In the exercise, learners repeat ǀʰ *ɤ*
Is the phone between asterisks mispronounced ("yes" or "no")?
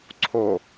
yes